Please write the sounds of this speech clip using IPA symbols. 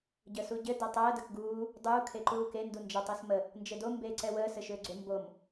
ɟəsuɟɘ dətˤəː dəkɡuː | dˤuː kʰeǃuːke ndund͡ʒʌ tˤesmə | nd͡ʒɘdo mbeːǀɛwəː sɘʃʏːɡ͡ǀʏ mbom

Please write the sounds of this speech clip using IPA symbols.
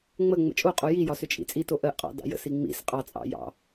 ŋ͡mə ŋ͡mə̰t͡ʃʼoqʼo jijɒ sʏt͡ʃʼḭt͡sʼito ʔɜʔqʼɑ̰ dɑ̰jə̰si ŋ͡mḭs qʼɑt͡sʼɑ̰ jɑ̰

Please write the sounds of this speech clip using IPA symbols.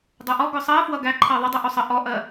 dˤɜʔɔ ɡʊsˤɜ fwʌɡæ ǃʰɜðˤədˤɪ ʔusˤə ʔɔʔɜ

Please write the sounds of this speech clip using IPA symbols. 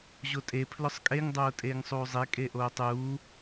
ʑotʼe pʰlʊsˤkʼeŋ dˤoːtʼeːŋsˤuːzˤe kʼeʔoːtˤuː

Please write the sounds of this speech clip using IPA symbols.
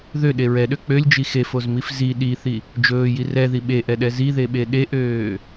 ðøɗe ɹɛɗø k͡pølʲd͡ʒi xefozmif zi ɗiθi | d͡ʒɵːji rɛði ɓeʔɛɗɛ ziðeɓe ɗeʔøː

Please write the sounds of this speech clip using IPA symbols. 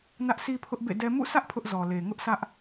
nä˦ʔsʰi˦pʰʊ˦ʔ bḛ˦˨dɛ˦ mṵ˦˨sʰä˦ʔ pʰʊ˦ʔzɔ˨ le˨ ŋʊ˦ʔsä˦ʔ

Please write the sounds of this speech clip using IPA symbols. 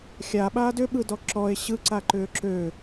xʲaɓaːd ʏɓɯdɔ ǁɔe̯ ɕɯǀaǃʏː ǁø

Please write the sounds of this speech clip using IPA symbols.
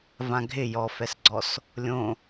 vãɡʱɪ jɔfɛsɡ͡ǀɔs | lʲõ

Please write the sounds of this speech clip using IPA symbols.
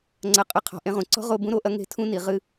ŋ͡ǀɐ˧ qʼɨ˧qʰɔ̤˨ ʔẽ˧ʁũ˨ǀɔ̤˦ ʁo˧ bũ˧ɾo˨˦ʔɐ˧ ŋe̤˧tʰũ˧ni˨ ʁɨ˧

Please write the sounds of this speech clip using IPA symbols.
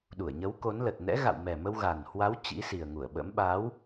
ɗu˧˩ə̯ɲə˨˦wko˨˦nlə˨˩t̚ nɛ̰˧˥ɣa̰˧˨wmɛ˨˩mə˧w ɣa˨˩n hwa˨˦w t͡ɕḭ˧˥si˨˩ə̯ŋu˧˩ə̯ɓə̰˧˥m ɓa˨˦w

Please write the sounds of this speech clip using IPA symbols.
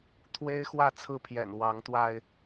t̪ʰwe˦ɪ̯ xwä˥˨t͡sʰɹ̩˥˨pʰjɛ̰˨˩n wɑ˨˦ŋt̪wa˧ɪ̯

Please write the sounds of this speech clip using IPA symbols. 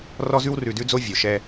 rɔ˦zʉ˦w rʉ˨dʉ˦d͡zo˦ vʲo˨ʃɛ˦

